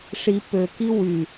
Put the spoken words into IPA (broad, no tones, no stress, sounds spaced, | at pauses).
ʂ i p ø k i w y